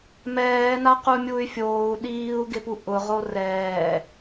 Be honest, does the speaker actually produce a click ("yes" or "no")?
no